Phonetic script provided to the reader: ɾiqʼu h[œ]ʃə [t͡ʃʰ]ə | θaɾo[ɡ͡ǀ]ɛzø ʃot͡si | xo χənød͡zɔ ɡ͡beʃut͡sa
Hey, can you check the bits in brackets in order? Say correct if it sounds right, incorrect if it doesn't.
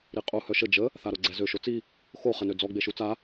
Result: correct, incorrect, correct

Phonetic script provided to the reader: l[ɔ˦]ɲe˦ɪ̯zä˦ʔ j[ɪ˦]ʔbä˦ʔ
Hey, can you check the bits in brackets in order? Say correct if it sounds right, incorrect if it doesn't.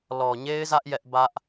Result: incorrect, incorrect

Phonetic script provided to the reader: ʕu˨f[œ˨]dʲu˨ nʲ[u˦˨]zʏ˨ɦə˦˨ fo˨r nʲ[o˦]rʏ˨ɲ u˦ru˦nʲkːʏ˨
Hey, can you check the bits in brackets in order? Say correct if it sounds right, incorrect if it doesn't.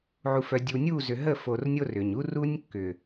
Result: correct, correct, correct

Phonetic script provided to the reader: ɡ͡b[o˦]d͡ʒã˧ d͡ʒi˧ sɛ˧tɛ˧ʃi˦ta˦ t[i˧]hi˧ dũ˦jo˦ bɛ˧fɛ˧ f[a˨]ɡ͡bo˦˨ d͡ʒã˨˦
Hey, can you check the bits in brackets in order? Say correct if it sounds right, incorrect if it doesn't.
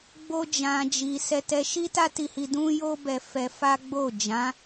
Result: correct, correct, incorrect

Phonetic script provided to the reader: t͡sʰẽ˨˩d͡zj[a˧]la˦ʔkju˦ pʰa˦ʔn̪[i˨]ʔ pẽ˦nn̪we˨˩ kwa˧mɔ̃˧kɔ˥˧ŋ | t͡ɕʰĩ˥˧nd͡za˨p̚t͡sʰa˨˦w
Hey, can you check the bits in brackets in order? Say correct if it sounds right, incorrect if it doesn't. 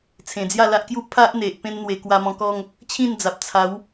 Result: incorrect, incorrect

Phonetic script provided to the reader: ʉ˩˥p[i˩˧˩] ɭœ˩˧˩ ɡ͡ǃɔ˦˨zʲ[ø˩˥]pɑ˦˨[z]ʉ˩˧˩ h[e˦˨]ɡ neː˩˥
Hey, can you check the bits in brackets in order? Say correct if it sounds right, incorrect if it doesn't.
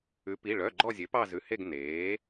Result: correct, correct, correct, correct

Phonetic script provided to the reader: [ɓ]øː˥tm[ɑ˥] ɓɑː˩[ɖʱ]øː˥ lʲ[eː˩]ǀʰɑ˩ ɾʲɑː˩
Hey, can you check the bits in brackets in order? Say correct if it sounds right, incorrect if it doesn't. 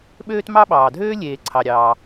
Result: correct, correct, incorrect, correct

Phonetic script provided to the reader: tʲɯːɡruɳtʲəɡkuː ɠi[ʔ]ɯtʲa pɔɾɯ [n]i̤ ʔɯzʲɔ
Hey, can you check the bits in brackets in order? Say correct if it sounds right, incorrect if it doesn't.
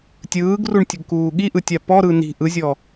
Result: correct, correct

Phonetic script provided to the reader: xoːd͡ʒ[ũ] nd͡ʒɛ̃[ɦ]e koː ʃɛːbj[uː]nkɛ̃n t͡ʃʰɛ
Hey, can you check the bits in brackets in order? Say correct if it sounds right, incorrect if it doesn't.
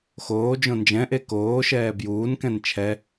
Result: incorrect, incorrect, correct

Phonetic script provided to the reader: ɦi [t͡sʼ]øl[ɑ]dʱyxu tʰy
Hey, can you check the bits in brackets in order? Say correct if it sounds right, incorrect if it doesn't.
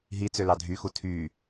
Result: incorrect, correct

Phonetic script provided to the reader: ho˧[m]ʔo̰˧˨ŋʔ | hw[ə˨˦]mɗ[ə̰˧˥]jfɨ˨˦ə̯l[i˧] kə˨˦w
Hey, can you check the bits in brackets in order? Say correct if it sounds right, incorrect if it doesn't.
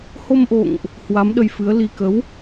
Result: correct, incorrect, incorrect, correct

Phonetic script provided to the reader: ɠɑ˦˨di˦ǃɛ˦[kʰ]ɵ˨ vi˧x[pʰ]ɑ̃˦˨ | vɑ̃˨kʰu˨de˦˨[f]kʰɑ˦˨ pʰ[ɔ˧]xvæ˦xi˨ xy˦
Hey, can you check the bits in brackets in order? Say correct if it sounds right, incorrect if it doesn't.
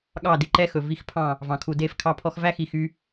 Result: incorrect, correct, correct, correct

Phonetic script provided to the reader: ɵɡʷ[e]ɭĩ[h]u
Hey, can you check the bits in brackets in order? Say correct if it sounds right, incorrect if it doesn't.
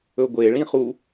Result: correct, incorrect

